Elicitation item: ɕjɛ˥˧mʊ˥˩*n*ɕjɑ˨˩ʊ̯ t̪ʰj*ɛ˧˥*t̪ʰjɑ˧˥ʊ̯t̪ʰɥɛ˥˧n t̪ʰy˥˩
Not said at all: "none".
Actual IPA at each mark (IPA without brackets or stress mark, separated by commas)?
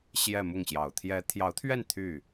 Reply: ŋ, ɛ˧˥